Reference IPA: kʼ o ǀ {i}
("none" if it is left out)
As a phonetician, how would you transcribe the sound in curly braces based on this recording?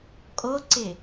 ɪ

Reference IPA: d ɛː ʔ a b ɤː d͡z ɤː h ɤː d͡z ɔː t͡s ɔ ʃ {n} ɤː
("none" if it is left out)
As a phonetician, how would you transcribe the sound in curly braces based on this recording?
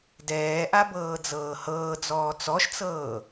t͡s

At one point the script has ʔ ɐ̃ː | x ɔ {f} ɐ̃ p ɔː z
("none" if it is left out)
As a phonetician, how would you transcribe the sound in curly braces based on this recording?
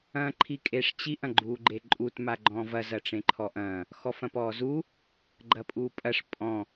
f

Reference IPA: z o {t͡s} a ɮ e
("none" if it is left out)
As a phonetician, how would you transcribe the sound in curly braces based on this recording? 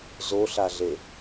ɬ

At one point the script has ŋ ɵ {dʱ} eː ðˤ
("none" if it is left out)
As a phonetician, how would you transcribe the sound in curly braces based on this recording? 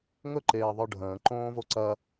ǃ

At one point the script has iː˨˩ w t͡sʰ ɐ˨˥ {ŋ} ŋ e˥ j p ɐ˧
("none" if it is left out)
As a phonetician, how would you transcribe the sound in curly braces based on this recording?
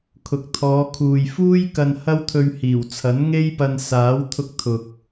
n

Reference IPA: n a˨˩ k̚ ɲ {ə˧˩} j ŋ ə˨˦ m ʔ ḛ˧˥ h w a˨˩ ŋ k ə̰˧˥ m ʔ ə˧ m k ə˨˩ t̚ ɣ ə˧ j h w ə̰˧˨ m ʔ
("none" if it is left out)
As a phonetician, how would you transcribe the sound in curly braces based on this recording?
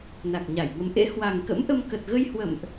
a˧˩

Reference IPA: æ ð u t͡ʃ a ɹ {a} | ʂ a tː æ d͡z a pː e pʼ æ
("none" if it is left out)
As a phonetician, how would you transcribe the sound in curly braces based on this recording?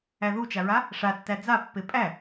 a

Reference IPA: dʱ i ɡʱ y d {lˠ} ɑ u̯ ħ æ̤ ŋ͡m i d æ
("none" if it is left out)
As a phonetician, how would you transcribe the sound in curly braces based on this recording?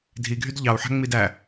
ʎ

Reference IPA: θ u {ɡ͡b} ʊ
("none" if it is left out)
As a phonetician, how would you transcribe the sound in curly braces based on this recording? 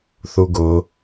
ɡ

